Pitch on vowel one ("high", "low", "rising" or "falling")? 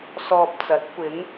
low